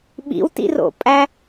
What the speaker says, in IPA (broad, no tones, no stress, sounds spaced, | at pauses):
ɓ ḭ w t ḭ r o̰ pʼ æ